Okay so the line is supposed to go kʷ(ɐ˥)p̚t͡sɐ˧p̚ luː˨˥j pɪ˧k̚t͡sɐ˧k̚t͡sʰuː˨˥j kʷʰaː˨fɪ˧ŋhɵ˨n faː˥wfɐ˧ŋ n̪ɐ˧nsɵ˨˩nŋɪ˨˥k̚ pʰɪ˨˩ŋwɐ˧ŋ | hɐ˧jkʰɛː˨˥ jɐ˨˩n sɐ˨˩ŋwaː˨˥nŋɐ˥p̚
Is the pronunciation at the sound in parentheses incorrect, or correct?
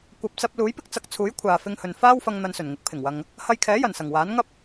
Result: incorrect